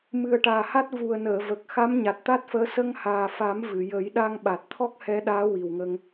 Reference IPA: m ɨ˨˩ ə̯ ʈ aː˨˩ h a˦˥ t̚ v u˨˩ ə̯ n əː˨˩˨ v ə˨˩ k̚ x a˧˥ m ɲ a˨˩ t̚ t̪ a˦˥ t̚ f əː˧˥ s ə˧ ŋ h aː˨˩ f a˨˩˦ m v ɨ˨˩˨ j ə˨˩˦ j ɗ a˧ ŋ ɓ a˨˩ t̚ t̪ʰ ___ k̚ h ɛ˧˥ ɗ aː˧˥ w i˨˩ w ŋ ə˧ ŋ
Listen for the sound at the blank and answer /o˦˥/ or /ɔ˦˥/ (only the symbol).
ɔ˦˥